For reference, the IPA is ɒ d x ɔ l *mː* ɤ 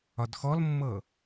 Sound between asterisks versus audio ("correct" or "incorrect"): correct